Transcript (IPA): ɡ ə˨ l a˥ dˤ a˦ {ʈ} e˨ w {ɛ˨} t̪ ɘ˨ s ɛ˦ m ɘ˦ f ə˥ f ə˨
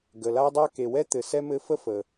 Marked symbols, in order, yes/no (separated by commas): no, no